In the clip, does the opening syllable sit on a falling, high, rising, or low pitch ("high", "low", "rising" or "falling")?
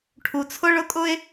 low